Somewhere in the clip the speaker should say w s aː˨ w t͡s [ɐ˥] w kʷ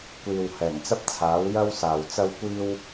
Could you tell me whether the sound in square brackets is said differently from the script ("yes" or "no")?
no